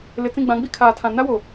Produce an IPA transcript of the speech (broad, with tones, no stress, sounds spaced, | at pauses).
l ɪ˨ t͡s ĩ˦˨ ɡ͡b ã˨˦ ɡ͡b i˦ kʰ aː˨ tʰ ã˨ n a˦ w o˨